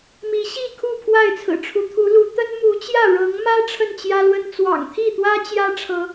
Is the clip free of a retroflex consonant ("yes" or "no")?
no